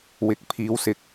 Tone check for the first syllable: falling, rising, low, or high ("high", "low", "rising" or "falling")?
rising